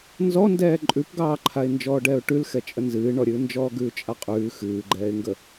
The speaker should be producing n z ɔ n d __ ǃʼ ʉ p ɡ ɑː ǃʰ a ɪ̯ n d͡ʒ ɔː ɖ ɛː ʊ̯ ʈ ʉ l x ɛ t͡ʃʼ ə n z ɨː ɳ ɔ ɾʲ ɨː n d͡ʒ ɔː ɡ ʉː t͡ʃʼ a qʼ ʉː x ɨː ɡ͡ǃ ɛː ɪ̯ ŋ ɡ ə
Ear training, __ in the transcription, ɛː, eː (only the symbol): ɛː